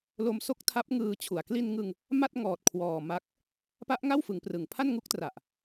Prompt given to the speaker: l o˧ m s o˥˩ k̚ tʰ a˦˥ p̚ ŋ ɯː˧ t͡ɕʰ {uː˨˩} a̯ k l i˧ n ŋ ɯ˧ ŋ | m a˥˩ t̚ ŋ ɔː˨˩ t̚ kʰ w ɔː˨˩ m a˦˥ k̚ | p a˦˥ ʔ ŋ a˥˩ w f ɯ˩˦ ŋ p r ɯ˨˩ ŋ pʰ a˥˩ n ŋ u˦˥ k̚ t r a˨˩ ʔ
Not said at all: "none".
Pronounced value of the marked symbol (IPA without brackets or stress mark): u˨˩